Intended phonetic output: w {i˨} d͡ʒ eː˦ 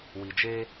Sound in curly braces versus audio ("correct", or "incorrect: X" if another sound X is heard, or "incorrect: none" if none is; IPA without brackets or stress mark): correct